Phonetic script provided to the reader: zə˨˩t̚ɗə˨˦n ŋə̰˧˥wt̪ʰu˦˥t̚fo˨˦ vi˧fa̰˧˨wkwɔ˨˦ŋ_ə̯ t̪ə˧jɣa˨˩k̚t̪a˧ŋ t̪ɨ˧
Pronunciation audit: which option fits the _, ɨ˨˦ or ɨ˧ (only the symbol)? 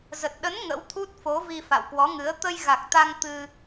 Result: ɨ˨˦